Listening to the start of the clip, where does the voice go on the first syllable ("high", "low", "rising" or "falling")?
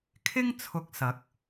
high